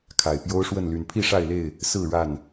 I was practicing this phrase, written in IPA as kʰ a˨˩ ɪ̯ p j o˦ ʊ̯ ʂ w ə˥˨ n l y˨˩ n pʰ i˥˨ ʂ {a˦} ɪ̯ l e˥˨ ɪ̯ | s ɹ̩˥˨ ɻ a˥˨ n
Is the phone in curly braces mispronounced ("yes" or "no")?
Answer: yes